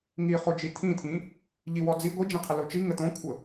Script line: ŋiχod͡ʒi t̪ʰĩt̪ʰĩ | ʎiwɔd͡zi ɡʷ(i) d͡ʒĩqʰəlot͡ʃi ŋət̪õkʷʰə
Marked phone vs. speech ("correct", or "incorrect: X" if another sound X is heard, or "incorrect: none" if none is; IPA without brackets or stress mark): correct